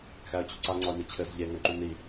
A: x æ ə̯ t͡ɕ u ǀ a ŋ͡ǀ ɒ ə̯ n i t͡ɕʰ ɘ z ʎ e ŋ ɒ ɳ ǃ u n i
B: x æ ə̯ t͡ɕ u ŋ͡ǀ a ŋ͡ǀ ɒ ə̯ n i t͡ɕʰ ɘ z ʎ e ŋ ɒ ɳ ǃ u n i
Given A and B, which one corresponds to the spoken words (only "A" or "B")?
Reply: A